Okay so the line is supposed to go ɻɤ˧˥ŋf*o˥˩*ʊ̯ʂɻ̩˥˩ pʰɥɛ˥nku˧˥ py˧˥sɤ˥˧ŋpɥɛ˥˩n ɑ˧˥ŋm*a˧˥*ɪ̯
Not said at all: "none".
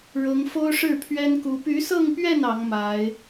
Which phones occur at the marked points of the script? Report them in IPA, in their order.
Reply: o˥, a˧˥

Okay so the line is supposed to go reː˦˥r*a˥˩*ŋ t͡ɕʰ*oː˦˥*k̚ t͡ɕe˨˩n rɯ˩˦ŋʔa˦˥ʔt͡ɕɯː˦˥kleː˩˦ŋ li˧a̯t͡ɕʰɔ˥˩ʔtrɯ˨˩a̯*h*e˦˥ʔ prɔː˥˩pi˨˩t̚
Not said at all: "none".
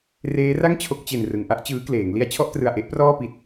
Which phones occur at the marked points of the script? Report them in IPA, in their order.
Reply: a˥˩, o˦˥, ʔ

